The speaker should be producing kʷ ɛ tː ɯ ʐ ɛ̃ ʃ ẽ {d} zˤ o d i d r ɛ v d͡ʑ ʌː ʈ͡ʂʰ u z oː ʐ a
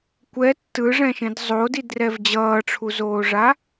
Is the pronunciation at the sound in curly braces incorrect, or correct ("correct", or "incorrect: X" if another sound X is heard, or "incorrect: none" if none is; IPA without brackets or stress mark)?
correct